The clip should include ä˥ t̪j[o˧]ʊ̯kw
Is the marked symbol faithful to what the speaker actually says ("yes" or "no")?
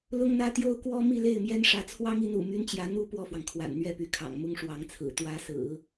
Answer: no